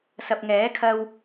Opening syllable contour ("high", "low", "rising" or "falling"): low